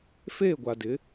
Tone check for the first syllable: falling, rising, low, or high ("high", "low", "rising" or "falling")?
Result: falling